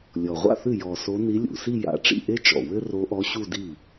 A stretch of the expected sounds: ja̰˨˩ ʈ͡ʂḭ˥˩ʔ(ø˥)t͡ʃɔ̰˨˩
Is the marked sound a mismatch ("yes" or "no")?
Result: yes